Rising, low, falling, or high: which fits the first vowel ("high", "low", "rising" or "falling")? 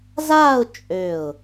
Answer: falling